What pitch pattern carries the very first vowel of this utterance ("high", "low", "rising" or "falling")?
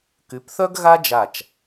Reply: rising